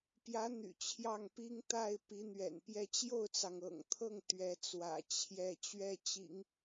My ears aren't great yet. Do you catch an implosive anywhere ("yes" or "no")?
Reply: no